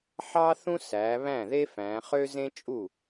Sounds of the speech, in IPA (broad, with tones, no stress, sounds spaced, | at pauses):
ħ ɑ˥ θ ũ˥ s æ˩˧ β æ̃˥˩ ð e˥ f æ̃˩˧ χ ø˥ z ẽ˥ t͡ʃʼ u˥˩